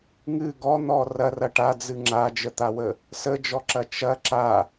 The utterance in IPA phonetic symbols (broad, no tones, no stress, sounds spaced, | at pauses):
ŋ ɨ ɡ ɔ n̪ ɔ r ɐ r ɐ ʈ a d͡z ɨ ŋ͡ǁ a d͡ʒ ə t̪ a w ə | s ə d͡ʒ ɔ ǁ ɐ t͡ʃ ɐ ǁ a